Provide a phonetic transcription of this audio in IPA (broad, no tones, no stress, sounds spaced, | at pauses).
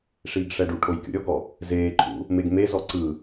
ʂ iː ɡ ʂ ɛ ɖ u ʈʰ o j kʲ ṵ ɾʲ ɔ ɡ ɔ | z eː ǃʰ ṵ | m e ɡ m e z ɔ ǀ ɯ